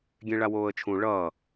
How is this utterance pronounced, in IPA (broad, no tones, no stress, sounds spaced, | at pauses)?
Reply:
ɡʲ ẽ ɭ a w oː ə̯ t͡ʃʰ ũ ɭ ʌ